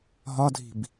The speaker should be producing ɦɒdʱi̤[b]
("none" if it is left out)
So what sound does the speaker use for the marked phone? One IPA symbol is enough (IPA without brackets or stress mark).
b